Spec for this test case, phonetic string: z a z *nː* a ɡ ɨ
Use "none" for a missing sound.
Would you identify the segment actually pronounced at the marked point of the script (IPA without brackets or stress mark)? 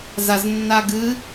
nː